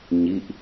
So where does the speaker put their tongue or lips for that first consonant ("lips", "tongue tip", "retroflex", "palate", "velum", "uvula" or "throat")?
palate